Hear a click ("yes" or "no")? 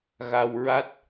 no